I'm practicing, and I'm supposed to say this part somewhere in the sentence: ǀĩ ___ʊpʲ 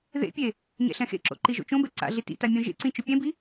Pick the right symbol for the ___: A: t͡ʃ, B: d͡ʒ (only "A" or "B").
A